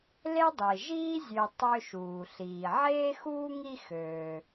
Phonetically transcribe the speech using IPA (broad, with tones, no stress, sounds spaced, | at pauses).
l e˥ dˤ i˩ ʒ iː˥ zʲ ø˨ tˤ ø˦ ʃ uː˩ ɬ iː˩ ʕ eː˥ x uː˥ ŋ i˦ x øː˩